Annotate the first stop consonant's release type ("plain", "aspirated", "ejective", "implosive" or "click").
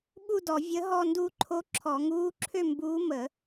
implosive